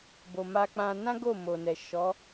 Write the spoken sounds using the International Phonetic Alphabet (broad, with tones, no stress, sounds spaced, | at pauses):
b o˨ m a˧ k͡p ã˧ n ã˦ ɡ o˦˨ m o˨ n ɛ˨ ʃ ɔ˨˦